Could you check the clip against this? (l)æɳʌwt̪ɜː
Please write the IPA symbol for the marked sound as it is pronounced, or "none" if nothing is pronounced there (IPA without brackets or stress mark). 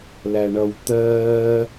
l